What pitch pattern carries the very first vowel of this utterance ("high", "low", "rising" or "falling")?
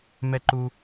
high